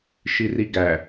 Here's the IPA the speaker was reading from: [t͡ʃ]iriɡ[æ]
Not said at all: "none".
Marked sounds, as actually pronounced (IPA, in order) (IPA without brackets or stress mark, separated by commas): ʃ, æ